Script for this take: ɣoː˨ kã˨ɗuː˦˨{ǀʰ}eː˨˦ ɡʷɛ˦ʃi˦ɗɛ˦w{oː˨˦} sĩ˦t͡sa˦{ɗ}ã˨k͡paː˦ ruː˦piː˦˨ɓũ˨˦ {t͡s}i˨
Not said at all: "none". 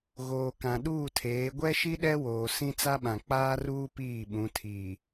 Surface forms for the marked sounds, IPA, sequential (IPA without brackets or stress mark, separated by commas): tʰ, oː˨, ɓ, tʰ